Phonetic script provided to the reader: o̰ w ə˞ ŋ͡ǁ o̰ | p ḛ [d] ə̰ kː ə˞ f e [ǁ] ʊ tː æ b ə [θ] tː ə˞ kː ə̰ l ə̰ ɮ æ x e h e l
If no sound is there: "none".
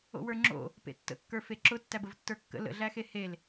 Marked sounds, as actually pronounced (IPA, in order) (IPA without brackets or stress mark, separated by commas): tː, ǁ, v